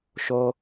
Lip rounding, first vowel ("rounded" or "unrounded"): rounded